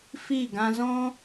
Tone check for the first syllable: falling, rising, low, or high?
falling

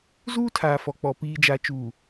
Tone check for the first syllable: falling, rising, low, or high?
high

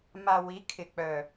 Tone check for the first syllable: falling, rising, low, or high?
low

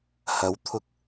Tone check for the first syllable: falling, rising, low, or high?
rising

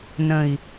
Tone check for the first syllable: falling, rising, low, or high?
low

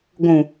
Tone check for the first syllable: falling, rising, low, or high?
low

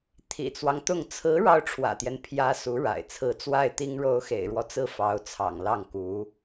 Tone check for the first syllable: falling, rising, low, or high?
low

